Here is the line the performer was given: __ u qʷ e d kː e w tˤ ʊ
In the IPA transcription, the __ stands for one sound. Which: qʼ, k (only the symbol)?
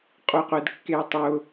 qʼ